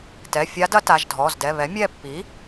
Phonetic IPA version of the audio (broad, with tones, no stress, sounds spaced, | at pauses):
t ɛ˩˧˩ fʲ a˧˥ d ɐ˧˥ t a˩˧˩ ʒ dʱ ɔ˩˧˩ z d ɛ˩˧˩ β ɛ˩˥ mʲ ɛ˦˨ pː i˩˥